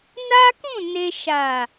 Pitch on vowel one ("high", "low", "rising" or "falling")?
high